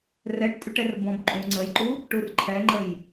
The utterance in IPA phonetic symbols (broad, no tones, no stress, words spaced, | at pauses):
rɛʈtʼyʈɛr bɔ̃bǃʼũ ŋ͡ǀəjǃu | ʈurǃʰɛŋ͡ǃəj